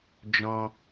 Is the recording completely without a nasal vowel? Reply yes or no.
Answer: no